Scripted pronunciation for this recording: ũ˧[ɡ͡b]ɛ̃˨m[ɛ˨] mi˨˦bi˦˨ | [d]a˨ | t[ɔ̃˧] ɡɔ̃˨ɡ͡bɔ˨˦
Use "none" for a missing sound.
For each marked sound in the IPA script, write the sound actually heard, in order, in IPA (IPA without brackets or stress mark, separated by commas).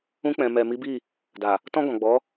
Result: k͡p, ɛ˨, d, ɔ̃˧